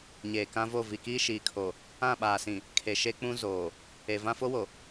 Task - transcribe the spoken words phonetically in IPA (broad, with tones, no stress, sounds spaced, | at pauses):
ɲ eː˨ k ã˦ v o˦˨ v i˨ k iː˦ ʃ iː˨ kʰ o˨ | ã˦˨ ɓ aː˨ s ĩ˨ | kʰ e˨ ʃ e˦ k͡p ũ˦ z oː˨ | e˨ v ã˦ f o˦ w o˨